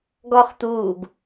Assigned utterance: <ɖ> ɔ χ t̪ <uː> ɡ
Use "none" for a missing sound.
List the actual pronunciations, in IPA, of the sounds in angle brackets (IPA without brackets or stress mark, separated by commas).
ɡ, uː